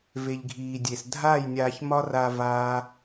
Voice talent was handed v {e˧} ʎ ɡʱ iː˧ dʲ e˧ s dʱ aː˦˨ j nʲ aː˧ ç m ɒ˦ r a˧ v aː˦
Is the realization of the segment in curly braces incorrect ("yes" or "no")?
no